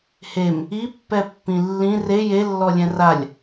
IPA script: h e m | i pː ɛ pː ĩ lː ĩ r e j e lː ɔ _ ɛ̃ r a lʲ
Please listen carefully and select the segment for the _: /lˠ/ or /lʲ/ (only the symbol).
lʲ